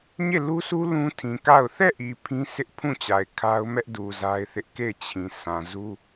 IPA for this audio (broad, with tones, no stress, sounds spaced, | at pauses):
ɲ e˦˨ l u˦ sʰ u˦ l ũ˦ tʰ ĩ˨ k a˦˨ ʊ̯ θ ɛ˦˨ ʔ i˨ pʰ ĩ˦ sʰ ɪ˦ ʔ pʰ ũ˦˨ t͡ɕ a˨ ɪ̯ kʰ a˦ ʊ̯ m ɛ˦ ʔ d u˨ z a˦ ɪ̯ θ ɪ˦ ʔ k e˦˨ ɪ̯ t͡ɕʰ ĩ˨ sʰ ã˨ z u˦